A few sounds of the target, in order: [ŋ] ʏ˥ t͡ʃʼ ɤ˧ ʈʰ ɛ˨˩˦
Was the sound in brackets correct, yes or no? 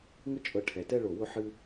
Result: yes